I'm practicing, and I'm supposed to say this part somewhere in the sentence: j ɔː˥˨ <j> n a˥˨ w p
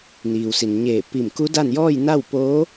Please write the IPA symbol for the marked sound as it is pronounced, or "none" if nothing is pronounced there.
j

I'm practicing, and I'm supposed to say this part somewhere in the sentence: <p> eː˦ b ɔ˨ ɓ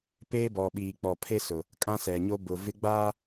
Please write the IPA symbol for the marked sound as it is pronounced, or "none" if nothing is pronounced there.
p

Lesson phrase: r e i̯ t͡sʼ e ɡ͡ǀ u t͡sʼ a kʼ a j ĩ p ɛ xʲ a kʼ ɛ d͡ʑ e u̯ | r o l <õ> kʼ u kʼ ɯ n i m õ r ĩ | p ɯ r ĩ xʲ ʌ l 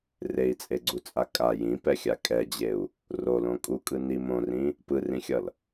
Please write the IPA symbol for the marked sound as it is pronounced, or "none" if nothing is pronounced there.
õ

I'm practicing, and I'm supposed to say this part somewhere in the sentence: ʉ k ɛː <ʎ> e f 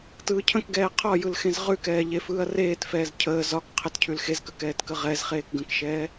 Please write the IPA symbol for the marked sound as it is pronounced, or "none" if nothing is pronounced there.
ʎ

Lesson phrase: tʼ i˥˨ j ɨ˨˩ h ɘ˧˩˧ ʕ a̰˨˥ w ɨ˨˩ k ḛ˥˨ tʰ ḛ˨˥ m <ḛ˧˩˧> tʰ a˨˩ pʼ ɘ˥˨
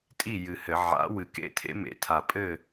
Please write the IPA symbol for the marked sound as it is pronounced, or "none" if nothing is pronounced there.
ḛ˨˩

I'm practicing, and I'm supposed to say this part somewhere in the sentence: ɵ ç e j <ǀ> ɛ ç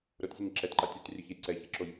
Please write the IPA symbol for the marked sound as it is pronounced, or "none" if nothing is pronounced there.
ǀ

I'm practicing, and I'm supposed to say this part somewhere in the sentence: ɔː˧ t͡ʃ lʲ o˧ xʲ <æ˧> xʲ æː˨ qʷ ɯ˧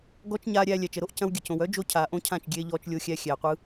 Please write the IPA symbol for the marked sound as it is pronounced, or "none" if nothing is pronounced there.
æ˧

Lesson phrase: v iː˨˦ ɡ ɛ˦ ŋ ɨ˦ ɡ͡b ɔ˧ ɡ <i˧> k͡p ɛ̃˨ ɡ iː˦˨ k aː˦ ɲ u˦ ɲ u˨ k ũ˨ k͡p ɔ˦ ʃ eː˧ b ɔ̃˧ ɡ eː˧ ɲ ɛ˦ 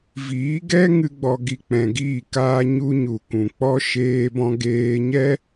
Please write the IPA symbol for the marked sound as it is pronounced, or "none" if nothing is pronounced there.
i˧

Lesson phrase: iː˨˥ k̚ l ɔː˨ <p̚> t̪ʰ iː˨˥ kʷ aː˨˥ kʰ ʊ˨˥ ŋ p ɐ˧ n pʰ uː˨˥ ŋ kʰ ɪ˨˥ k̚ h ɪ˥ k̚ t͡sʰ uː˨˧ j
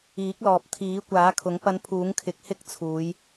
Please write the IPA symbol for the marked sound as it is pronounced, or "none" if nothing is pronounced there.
p̚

